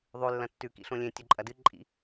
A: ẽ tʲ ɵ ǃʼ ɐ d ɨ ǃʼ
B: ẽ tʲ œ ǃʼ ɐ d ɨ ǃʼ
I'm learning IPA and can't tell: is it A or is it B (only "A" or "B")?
A